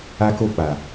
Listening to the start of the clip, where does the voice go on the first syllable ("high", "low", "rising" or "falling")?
high